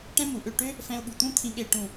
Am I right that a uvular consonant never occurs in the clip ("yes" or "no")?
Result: yes